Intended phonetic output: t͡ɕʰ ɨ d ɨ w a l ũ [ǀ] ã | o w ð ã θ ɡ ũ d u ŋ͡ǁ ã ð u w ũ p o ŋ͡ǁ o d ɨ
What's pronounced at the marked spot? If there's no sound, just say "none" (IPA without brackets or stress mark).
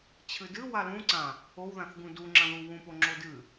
ǀ